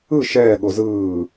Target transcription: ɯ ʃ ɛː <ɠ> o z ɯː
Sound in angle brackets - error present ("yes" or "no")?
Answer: no